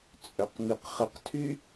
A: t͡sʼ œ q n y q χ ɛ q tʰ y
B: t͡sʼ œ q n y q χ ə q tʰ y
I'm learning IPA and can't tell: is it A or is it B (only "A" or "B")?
B